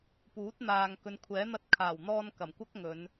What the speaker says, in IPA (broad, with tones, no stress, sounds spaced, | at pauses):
p uː˨˥ t̚ n̪ aː˨ ŋ k ɵ˨˧ n kʷʰ ɛː˨˥ n̪ ɐ˧ t̚ kʰ aː˨˩ w n̪ ɔː˧ n k ɐ˨˩ m kʷ ɐ˥ k̚ ŋ ɵ˨˧ n